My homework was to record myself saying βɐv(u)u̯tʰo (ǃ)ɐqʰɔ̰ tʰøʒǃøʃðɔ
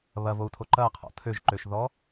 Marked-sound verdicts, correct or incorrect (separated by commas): incorrect, correct